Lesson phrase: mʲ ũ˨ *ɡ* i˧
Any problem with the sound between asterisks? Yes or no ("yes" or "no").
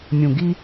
no